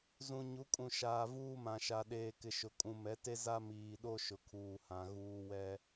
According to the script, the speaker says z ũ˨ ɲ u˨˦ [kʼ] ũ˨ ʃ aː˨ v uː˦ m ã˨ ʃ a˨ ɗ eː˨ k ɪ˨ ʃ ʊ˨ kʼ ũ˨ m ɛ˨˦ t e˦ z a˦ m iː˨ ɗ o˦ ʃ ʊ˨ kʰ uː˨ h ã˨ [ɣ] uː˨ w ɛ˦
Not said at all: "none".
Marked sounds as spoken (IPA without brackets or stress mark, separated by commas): kʼ, ɣ